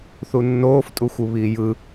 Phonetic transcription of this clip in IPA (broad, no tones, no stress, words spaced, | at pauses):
θunːoːf tʼuxʷɯβiːjɯ